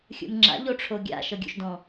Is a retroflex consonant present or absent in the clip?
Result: present